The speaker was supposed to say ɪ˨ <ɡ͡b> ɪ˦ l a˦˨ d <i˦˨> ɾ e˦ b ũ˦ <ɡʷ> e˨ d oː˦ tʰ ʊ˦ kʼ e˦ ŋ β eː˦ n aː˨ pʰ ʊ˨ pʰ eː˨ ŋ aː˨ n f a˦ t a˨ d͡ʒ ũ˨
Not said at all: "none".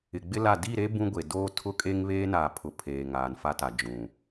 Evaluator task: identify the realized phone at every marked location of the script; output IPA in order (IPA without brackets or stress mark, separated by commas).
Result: ɡ͡b, i˦˨, ɡʷ